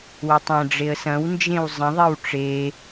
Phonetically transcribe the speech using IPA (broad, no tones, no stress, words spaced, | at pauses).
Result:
wətˤɐ̃ɖ͡ʐeə̯ sɐ̃wnd͡ʒẽw zˤə̃ðˤew ʈ͡ʂe